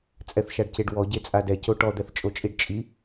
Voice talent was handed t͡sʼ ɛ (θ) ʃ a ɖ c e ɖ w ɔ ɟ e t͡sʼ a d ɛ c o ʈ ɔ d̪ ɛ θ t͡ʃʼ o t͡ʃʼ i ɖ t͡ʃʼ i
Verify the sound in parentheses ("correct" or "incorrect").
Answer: correct